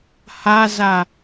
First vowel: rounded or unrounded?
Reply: unrounded